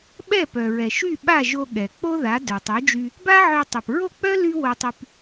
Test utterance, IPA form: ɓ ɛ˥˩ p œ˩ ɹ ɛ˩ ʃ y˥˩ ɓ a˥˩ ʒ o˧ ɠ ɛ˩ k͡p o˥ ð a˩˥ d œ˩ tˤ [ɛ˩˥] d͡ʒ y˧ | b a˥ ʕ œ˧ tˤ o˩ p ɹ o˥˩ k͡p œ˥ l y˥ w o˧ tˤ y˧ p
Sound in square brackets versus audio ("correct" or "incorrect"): incorrect